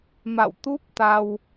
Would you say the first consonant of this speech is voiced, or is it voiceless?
voiced